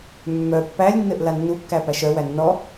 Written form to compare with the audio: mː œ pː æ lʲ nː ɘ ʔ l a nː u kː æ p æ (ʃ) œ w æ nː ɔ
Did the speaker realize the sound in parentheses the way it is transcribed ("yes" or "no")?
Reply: yes